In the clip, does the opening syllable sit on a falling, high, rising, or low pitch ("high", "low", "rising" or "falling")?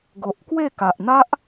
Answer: low